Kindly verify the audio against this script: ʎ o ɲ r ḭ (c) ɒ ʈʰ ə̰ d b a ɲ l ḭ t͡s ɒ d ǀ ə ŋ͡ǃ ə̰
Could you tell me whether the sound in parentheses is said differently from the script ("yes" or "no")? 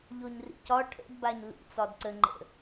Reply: no